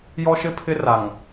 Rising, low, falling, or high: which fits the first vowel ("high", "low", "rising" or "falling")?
high